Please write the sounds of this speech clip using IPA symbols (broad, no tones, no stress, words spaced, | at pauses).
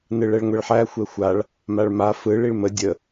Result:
nɯɭɛɭŋʷɛɭħæ xʷɛxʷaɭ | maɭma fɯɭ iɭmə dʲə